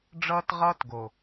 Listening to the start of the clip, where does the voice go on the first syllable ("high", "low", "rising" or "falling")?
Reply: high